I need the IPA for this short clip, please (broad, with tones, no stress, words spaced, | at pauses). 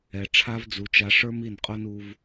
ɛ˨ ʈ͡ʂʰa˧v d͡zu˧t͡ʃa˧ ʂə˞˦mi˦˨nqʼo˦n u˧v